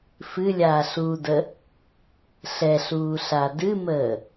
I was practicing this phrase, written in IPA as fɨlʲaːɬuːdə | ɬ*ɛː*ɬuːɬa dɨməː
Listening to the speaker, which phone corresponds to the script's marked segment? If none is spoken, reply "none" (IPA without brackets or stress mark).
ɛ